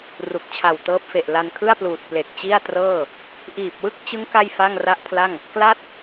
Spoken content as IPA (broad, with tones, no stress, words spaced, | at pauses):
ru˨˩k̚ t͡ɕʰa˨˩wtɤː˦˥p̚fe˨˩ʔ la˧nkʰɯ˥˩a̯pluː˨˩t̚ ple˨˩k̚t͡ɕi˥˩a̯trɤː˥˩ | ʔiː˨˩p̚wɯ˥˩k̚t͡ɕɯ˦˥ŋ ka˥˩jfa˥˩ŋra˥˩ʔpʰla˥˩ŋ | kla˥˩t̚